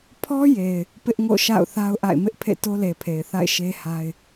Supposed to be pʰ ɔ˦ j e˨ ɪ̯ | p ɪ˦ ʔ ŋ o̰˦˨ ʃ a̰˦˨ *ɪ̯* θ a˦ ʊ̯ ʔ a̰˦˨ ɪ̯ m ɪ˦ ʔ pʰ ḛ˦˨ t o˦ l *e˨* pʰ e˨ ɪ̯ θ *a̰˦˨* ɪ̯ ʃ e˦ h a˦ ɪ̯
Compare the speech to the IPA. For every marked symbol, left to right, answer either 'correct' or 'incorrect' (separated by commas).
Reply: incorrect, correct, correct